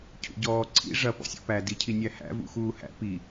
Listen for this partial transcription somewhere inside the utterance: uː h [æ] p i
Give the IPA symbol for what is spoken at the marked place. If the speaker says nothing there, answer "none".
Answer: æ̰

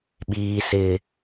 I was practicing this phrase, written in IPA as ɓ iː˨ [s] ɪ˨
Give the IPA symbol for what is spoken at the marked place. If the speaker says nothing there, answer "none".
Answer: s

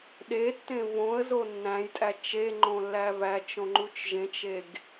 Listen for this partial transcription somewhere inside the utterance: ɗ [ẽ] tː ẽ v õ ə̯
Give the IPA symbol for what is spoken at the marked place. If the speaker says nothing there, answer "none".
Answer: e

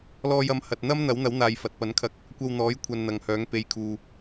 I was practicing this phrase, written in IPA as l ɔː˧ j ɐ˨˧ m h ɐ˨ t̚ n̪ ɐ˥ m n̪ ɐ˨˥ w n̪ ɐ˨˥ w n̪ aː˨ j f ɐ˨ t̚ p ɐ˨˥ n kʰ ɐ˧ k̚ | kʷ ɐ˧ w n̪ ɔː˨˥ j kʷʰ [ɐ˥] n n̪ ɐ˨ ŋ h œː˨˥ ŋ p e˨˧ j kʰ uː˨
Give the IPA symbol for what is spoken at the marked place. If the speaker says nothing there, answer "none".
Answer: ɐ˨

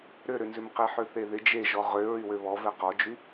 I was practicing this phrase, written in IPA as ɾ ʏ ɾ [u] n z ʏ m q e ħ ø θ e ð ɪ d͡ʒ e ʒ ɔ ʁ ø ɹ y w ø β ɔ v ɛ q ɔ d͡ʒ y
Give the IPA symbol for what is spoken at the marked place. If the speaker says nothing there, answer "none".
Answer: ʏ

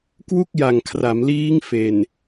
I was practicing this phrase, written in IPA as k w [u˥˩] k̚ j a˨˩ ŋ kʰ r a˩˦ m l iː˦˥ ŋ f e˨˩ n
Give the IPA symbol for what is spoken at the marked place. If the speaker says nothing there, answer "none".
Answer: u˥˩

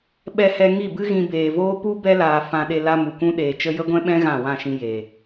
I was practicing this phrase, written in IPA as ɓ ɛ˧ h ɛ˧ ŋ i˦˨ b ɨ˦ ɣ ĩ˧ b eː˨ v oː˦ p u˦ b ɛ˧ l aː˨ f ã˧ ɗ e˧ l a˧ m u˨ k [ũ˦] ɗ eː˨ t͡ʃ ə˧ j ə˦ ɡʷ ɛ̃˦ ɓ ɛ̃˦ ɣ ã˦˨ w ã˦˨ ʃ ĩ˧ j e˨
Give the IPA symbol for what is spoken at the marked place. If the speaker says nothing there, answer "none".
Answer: ũ˦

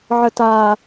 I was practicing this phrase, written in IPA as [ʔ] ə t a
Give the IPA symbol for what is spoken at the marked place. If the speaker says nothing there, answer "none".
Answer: ʕ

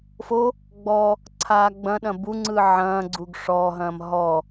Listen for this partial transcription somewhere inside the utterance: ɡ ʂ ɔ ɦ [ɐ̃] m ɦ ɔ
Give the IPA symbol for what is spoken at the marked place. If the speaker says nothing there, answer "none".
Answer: ɐ̃ː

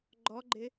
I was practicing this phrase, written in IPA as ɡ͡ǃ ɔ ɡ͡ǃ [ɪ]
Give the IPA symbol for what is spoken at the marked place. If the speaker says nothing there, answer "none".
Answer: ɪ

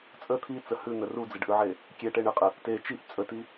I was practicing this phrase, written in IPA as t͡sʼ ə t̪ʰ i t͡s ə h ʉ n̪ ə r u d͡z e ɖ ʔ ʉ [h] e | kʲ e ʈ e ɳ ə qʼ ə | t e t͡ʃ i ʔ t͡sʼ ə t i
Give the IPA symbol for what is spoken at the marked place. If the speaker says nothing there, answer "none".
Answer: ʕ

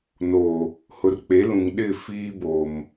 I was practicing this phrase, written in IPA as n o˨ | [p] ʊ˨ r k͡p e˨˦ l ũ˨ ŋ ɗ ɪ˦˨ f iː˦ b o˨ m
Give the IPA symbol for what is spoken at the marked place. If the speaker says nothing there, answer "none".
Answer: h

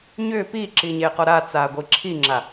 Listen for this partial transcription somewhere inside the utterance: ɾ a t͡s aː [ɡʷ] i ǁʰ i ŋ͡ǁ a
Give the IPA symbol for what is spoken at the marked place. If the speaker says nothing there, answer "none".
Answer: ɡʷ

